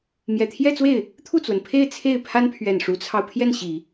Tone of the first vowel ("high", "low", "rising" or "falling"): low